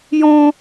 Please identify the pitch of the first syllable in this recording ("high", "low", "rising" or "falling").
high